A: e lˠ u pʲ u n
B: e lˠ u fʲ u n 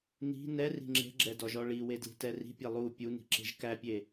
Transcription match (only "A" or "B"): A